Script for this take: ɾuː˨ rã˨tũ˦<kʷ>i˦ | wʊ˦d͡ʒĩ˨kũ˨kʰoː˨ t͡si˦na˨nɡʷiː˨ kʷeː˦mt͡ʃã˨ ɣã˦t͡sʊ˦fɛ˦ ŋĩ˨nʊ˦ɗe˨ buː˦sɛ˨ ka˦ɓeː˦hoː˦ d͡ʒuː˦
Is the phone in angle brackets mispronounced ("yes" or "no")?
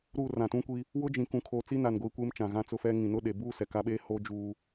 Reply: no